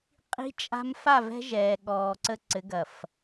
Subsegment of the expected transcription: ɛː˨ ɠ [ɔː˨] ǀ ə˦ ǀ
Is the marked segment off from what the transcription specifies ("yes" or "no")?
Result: no